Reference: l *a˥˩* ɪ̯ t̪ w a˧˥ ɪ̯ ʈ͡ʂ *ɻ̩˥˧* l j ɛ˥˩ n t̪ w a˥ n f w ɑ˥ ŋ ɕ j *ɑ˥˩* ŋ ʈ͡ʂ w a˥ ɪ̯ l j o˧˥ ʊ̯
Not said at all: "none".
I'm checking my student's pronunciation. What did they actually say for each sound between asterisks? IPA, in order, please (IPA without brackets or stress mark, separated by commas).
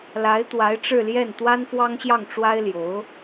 a˧˥, ɻ̩˥˧, ɑ˥˩